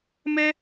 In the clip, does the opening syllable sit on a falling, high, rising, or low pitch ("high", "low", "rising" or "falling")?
high